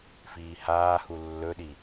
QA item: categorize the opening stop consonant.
implosive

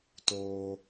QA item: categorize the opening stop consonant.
plain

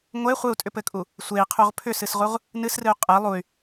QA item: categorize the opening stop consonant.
ejective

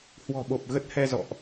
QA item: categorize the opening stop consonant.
implosive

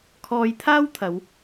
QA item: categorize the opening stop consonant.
aspirated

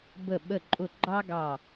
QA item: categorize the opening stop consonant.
plain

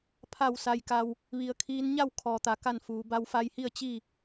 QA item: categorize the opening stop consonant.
aspirated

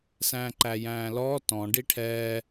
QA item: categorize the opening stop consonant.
click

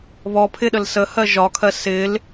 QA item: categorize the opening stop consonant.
aspirated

